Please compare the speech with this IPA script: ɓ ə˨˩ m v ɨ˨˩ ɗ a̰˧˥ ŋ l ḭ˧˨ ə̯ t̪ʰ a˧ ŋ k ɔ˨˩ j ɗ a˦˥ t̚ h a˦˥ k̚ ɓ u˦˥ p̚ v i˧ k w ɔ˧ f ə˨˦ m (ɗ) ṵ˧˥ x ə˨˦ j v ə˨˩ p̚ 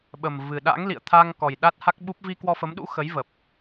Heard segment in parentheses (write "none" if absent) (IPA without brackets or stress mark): ɗ